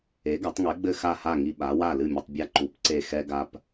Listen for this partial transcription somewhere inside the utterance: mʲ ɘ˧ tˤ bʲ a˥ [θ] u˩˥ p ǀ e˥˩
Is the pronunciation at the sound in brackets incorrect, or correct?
incorrect